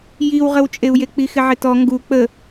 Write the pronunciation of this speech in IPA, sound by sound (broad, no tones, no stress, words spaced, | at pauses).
jiwʁəwt͡ʃʼeu̯je k͡pixɪʕɪtɔ ŋɡu k͡pə